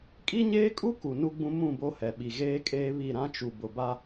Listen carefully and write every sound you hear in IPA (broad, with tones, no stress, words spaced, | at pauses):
kʼi˦ɲeː˦kʼu˦ku˨ nu˦ɡ͡bũ˦ mũ˦˨bo˦hɛ˨ ɓi˨ɣeː˦kʼeː˦ βi˦˨ɾã˦t͡ʃu˨ bʊ˨ba˦